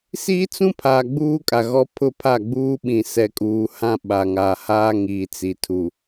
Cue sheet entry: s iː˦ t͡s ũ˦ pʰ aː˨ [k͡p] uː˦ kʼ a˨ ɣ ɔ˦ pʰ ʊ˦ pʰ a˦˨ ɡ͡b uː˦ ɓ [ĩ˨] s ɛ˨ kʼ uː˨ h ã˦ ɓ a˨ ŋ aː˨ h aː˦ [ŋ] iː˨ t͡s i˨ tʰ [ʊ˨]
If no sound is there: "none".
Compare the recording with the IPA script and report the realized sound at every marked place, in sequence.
ɡ͡b, ĩ˨, ŋ, u˨

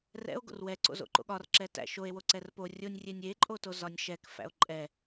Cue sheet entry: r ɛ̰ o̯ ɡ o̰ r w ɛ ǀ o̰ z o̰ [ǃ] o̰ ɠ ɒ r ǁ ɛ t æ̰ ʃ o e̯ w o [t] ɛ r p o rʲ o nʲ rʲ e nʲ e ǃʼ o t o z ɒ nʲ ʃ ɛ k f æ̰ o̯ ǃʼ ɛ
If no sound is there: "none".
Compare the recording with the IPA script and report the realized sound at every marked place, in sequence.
ǃ, ǀ

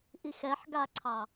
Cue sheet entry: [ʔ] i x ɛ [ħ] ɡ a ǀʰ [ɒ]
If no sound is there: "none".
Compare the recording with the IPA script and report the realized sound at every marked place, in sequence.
ʔ, ħ, ɑ

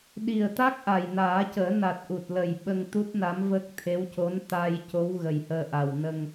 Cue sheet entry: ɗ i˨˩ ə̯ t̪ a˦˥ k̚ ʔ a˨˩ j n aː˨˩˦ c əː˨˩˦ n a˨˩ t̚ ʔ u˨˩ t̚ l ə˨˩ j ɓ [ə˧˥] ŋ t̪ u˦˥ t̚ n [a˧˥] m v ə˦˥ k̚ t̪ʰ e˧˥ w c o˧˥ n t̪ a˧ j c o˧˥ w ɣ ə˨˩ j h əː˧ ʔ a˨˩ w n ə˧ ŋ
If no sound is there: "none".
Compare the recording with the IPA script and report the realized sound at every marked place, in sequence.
ə˧, a˧˥

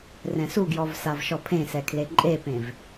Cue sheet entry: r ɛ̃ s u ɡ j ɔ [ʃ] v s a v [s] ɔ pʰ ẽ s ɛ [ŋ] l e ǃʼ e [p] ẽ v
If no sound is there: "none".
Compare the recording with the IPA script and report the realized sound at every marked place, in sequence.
none, ʃ, kʰ, p

